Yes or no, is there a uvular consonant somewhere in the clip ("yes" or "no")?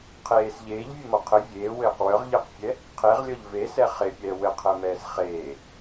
yes